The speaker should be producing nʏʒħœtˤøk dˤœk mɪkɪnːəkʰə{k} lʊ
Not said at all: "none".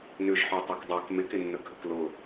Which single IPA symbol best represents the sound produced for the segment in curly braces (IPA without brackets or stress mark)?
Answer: k